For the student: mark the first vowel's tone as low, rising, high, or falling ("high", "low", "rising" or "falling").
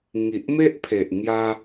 low